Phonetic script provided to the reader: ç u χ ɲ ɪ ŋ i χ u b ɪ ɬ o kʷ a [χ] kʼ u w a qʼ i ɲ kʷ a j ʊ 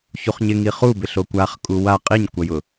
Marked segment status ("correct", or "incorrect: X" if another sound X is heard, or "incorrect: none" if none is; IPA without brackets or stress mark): correct